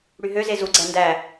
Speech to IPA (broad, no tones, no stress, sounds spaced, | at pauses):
ɽ y ɦ ø z e z u ɡ͡ǀ æ n d æ